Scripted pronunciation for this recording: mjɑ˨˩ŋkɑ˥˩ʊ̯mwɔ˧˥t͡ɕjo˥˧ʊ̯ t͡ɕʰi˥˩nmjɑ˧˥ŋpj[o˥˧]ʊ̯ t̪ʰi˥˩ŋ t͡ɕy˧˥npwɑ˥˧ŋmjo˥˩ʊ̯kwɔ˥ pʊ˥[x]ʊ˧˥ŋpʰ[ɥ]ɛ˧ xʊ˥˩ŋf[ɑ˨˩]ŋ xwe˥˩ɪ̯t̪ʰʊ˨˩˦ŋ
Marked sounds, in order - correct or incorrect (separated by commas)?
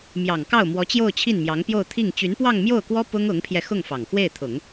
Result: correct, incorrect, incorrect, correct